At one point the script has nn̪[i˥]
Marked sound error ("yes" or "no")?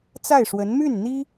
no